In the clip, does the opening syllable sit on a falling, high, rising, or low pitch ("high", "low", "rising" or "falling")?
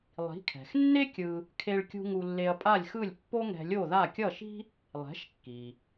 rising